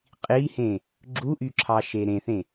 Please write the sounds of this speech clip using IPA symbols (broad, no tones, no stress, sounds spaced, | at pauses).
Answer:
qʼ i h ẽ | ɡ͡ǁ u ʔ y ǁʰ ɑ ʃ e ɾ ẽ θ ẽ